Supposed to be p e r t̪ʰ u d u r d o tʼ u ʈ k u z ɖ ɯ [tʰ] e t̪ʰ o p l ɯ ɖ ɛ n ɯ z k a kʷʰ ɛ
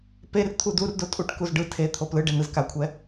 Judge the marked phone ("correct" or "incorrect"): correct